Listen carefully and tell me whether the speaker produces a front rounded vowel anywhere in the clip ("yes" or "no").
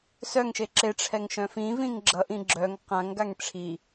yes